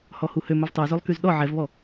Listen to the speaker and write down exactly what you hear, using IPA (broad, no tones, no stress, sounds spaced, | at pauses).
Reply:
h ɔ h u h ø m ɵ v tˤ y z ø lˠ k y z ɗ ɔ ʕ ɛ v β ɔ